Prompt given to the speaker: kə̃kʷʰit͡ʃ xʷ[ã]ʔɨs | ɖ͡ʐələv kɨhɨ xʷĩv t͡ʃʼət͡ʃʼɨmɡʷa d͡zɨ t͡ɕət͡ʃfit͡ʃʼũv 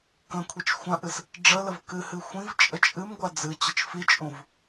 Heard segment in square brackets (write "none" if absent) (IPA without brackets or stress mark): ã